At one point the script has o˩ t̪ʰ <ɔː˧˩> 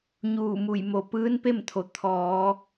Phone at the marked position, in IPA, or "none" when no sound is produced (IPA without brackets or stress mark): ɔː˩˧